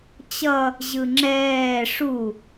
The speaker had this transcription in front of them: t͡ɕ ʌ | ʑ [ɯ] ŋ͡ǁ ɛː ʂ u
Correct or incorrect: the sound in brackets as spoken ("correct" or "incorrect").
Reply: correct